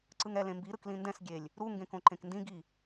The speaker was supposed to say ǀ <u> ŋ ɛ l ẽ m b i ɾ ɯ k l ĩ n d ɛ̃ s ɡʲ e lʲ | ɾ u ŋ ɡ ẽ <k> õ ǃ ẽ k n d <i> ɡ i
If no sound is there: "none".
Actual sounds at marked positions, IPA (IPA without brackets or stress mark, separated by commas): ɯ, k, ĩ